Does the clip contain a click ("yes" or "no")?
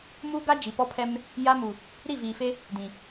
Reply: no